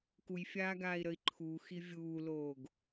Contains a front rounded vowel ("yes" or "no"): no